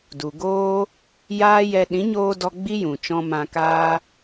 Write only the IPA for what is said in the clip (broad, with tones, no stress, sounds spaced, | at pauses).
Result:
d u˨ ɡ oː˦ | j aː˦ j ɛ˧ ɗ ĩ˨˦ ɲ oː˧ d ɔ˧ ɡ͡b i˦ j ũ˨ t͡ʃ ɔ̃˧ m ã˧ k aː˦